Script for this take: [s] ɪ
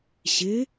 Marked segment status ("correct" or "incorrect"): incorrect